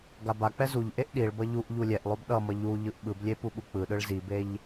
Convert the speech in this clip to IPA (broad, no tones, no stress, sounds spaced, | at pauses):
ɡ a b a k͡p ɛ z u ʎ ʔ e ʔ ɗ i ɭ b ʌ ʎ u ʔ ʎ u lʲ ɛ ʔ lˠ o b ɗ ʌ m ʌ ʎ u ʎ ɯ ʔ ɓ ɯ b lʲ e p u ɓ u k͡p ɯ ɗ ɯ ɭ z i b e ʎ